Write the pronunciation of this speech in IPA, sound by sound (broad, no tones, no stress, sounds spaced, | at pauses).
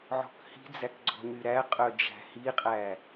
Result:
ʕ ɔ̤ k h i̤ d͡z æ k ɡ͡ǀ ɔ̤ ɲ y ɾ æ qʼ œ d͡ʒ æ̤ h i qʼ æ